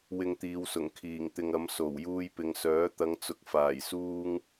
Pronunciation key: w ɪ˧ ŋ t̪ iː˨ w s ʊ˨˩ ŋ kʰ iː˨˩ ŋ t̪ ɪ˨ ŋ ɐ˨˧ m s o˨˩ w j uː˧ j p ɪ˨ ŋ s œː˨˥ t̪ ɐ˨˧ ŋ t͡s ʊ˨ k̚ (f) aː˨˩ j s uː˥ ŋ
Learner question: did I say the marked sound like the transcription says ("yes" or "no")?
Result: yes